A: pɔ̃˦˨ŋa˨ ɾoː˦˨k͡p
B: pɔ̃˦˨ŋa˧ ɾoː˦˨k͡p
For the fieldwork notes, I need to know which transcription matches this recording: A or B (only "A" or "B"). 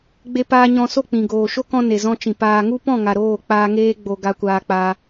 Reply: A